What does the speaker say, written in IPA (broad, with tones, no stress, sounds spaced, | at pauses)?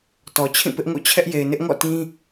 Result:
t ɔ˨ t͡ɕʰ ĩ˦˨ p ɪ˦ ʔ ŋ o̰˦˨ t͡ɕʰ ɛ˦ ʔ j e˨ ɪ̯ n ɪ˦ ʔ ŋ ɔ̰˦˨ t ĩ˦